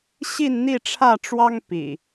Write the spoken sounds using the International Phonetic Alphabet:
ɕ i˥˨ n n̪ i˥˨ ʈ͡ʂʰ ä˥˨ ʈ͡ʂ w ɑ˦ ŋ p ḭ˨˩

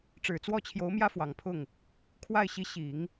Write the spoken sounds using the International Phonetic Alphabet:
ʈ͡ʂ ɻ̩˨˩ t͡s w ɔ˥˩ t͡ɕʰ j o˧˥ ʊ̯ m j ä˥ f w ɑ˨˩ ŋ pʰ ʊ˥˩ ŋ | kʰ w a˥˩ ɪ̯ ɕ i˧˥ ɕ i˨˩˦ ŋ

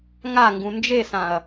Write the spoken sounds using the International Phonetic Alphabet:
ŋ a ŋ ɡ ũ n d͡ʒ e s ã ɐ̯

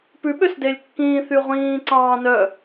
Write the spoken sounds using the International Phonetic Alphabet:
p ʉ ɓ ø s d e lʲ kː ĩː θ y ʁʷ ĩː ǀ ɑ̃ː n œ

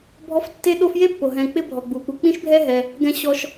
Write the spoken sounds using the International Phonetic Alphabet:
bʱ ɔ˦ f tː e˥ ɗ o˥ f j e˥ pː o˩ ɦ ɛ̃˨ k͡p ɪ˥ bʱ ɔ˩ ɡ͡b u˩ k͡p u˨ k͡p ĩ˥ ʃ bʱ ɛ˥ ɦ ɛ˨ | ɡ ɛ̃˦ ɕ ɔ˦ ʃ

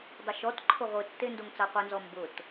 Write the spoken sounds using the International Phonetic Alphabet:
dˤ ʊ ʃ ɔ t ǃʰ ʊ ʁʷ ɨ tː e n d o ŋ t͡s a qʷ i n z ɔ m b ʊ t

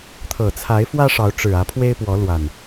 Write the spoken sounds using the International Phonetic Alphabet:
t̪ʰ ɤ˨˩ t͡sʰ a˨˦ ɪ̯ f w ä˦ ʂ ɑ˨˦ ʊ̯ ʈ͡ʂ ɻ̩˨˩ ä˨˦ pʰ w e˦ ɪ̯ p w ɔ˨˦ l w a˨˩ n

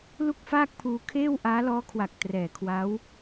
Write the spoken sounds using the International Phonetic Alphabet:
l u˥˩ k̚ f aː˥˩ k̚ pʰ uː˧ kʰ eː˥˩ w ʔ aː˦˥ l ɔː˦˥ kʰ w a˨˩ k̚ t r ɛː˨˩ kʰ w a˦˥ w

